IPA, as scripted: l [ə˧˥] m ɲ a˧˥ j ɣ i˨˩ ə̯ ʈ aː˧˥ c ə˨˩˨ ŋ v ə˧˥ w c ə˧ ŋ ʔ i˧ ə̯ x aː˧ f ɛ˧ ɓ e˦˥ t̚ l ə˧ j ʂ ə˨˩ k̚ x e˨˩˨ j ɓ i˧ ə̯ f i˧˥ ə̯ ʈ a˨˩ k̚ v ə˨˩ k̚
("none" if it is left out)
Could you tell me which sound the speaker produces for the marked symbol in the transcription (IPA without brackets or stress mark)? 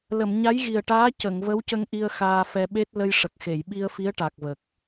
ə˨˩˨